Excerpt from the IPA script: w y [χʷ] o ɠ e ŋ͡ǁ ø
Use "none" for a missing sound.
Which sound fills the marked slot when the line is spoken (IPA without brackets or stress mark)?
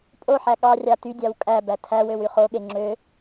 χ